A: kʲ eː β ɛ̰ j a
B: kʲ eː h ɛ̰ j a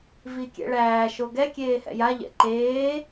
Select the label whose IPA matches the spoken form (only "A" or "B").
B